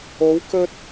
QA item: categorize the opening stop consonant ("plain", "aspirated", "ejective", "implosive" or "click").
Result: plain